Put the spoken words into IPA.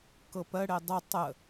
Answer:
k ɤ p ɜ ɽ e dˤ ə tˤ ə

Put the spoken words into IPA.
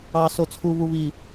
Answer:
ɑː˨ s o˨ t͡sʰ u˨ β u˨ β i˨

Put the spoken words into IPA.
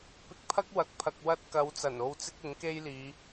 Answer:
p ɪ˨ k̚ pʰ ɐ˥ k̚ w ɐ˧ k̚ pʰ ɐ˧ k̚ w ɐ˧ t̚ k ɐ˨˧ w t͡s ɐ˨˩ n o˧ w t͡s ɪ˥ k̚ ɪ˨˥ ŋ k e˥ j l iː˨˧

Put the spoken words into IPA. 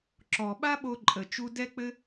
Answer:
ǁ ɔ˨ ɓ a˦ ɓ o˧ ǃʼ ə˨ t͡ʃ u˧ d ɛ˦ k͡p ɘ˦

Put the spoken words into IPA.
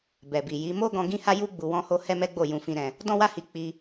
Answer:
b ɛ˨ b i˨ j i˨˦ m o˦ ɡ ɔ̃˧ ɡ ĩ˦ h a˦ j u˦ ɡ͡b u˧ w ɔ̃˦ h o˦ h ɛ˦ m ɛ˦ ɡ͡b o˦˨ j ũ˧ f ĩ˧ ɾ ɛ̃˧ | d ɔ̃˦ w a˦ h i˧ k͡p i˧

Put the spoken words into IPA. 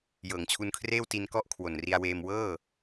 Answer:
j ɤː˩˦ ŋ t͡ɕʰ u˧ n kʰ r eː˥˩ w t i˧ n k ɔ˥˩ ʔ kʰ w o˨˩ n r i˧ a̯ w eː˧ m w ɤː˥˩

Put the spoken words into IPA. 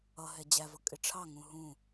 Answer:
ʌ ɦ ɛ d͡ʑ æ v ʌ kʼ ɪ ʈ͡ʂʰ ɑ ŋ ũ ɦ ũ

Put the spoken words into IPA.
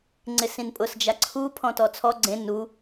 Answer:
ŋ͡ǀ ɪ s ĩ n pʼ ʊ s d͡ʒ a ǀʰ u pʰ ɔ̃ t ɔ t͡sʰ ɔ ɡ͡ǀ ẽ n u

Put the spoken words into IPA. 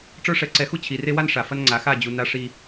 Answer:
ʈ͡ʂ ə˞˦ ʂ ɛ˨˦ ǀ ɛ˨˦ x u˦ t͡ɕʰ i˨ r e˦ w a˦ n ʂ a˨ f ɐ˦ n ŋ͡ǀ a˨˦ x a˦˨ d͡ʑ u˨ n a˦ ʂ i˦

